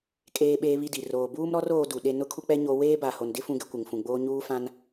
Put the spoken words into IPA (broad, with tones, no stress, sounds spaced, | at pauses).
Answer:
kʼ eː˦ ɓ eː˦ β i˦ d i˨ r oː˨ b uː˦ m ɾ ɔ˦ r oː˦ d u˨ ɗ e˦ n ʊ˦ kʰ u˦ k͡p ɛ˦ ɲ o˦ w eː˦ b a˨ h o˨ n d ɪ˦ f ũ˦ ɡ ɪ˦ kʷ ɪ˨ ŋ f ũ˨ ɡ͡b oː˦ ɲ uː˦ f ã˦ n